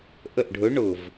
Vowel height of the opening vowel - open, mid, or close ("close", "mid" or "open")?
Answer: mid